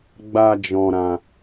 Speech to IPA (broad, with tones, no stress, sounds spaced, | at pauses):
ɡ͡b a˧ d͡ʒ ɔ̃˧ ɾ ã˧